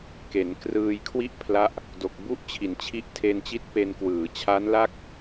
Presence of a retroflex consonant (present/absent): absent